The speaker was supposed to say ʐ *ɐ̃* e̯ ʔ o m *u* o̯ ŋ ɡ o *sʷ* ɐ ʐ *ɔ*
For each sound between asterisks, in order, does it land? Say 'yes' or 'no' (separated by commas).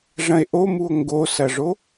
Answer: yes, yes, no, no